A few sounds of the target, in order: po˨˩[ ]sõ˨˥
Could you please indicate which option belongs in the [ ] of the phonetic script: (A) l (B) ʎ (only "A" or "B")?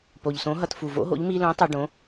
B